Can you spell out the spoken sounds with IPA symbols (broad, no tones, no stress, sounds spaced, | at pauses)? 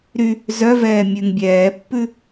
ɾ y | z œ v ɛː mʲ ʉ ŋ bʲ ɛː pː ʉ